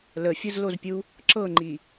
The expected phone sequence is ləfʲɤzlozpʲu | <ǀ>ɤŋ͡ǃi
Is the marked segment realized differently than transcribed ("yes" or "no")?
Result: yes